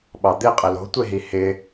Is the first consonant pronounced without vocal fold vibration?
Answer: no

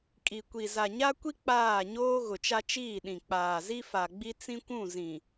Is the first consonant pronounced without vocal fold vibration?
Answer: yes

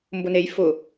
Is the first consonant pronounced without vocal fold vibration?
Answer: no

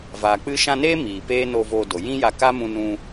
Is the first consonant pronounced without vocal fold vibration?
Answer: no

